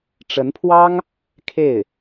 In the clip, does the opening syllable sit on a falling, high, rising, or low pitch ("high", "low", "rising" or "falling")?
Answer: rising